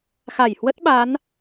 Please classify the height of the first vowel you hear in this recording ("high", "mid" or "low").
low